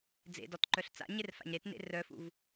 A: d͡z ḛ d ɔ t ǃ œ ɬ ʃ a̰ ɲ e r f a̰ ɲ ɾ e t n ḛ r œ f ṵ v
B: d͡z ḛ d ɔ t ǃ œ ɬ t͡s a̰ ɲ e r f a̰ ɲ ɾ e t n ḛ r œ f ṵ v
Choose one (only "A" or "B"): B